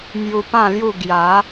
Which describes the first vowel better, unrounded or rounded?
rounded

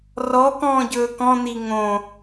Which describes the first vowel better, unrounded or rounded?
rounded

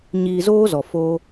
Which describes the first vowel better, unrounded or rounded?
unrounded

